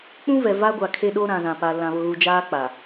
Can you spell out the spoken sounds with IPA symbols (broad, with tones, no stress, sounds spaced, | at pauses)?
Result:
k͡p ũ˦ v ɛ˨ v a˦ ɡʷ a˨ kʰ e˦ ɗ o˦ ɾ ã˨ z ã˨ p a˨ l ã˨ β ʊ˨ ɣ u˨ d͡ʒ aː˦ k͡p a˨